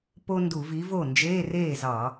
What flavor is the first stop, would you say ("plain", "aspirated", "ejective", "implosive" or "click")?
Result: plain